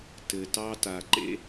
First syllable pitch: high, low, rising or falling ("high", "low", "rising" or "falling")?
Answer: low